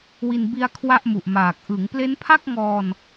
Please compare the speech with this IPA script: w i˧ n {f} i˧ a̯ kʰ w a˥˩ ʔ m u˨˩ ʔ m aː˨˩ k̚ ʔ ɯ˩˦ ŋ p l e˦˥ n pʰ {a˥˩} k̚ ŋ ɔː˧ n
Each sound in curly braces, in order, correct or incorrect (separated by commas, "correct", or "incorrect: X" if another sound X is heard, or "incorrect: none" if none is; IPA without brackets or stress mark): incorrect: b, correct